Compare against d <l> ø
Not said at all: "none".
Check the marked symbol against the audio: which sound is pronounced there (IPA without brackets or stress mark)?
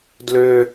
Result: l